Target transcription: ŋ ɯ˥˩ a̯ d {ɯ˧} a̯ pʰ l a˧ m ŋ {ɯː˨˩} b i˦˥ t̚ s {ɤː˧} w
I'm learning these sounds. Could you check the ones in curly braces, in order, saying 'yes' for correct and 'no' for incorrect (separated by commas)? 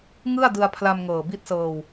yes, no, yes